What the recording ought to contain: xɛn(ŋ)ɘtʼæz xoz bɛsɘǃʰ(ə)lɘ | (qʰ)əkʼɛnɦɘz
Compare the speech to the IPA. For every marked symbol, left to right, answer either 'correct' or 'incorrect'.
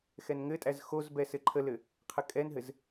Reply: correct, correct, correct

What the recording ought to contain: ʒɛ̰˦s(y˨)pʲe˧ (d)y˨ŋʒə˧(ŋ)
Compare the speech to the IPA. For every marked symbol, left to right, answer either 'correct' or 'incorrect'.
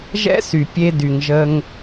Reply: correct, correct, correct

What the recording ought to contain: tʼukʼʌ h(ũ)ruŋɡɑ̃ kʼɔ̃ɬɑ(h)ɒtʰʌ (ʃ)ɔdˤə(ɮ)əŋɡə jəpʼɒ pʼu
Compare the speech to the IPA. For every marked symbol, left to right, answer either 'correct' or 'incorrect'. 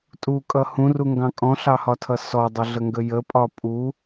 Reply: correct, correct, incorrect: s, correct

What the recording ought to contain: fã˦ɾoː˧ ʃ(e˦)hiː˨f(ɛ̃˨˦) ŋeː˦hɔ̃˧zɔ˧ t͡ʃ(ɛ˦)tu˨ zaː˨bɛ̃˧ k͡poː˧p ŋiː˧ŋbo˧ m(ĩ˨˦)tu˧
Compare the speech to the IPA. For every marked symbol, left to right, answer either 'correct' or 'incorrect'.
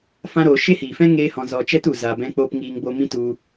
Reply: correct, incorrect: ɛ̃˦, correct, incorrect: ĩ˦

